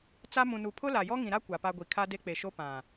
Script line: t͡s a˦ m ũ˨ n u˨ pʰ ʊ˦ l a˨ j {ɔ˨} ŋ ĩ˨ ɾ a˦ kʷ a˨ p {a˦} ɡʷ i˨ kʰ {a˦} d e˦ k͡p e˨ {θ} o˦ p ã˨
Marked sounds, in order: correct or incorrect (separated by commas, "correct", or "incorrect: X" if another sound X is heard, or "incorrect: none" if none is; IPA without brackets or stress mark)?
incorrect: ɔ˦, correct, correct, incorrect: ʃ